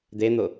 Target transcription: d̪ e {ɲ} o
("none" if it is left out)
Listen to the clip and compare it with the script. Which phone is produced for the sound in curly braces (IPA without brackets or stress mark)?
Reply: n̪